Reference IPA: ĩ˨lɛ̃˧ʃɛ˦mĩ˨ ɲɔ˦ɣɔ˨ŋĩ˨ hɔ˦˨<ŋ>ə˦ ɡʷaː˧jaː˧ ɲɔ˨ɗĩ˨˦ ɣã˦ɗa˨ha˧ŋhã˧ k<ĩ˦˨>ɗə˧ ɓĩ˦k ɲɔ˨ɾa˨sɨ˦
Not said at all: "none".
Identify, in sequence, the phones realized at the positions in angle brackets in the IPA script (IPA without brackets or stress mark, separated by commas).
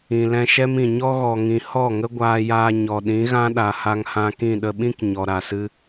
ŋ, ĩ˦˨